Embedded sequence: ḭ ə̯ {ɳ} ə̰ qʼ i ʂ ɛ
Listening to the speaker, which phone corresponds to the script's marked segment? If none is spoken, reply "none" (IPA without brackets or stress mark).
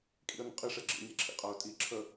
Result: n